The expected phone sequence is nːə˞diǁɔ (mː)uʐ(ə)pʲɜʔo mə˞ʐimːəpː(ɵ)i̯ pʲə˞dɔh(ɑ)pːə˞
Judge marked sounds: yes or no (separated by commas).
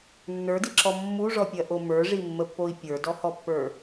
yes, no, no, no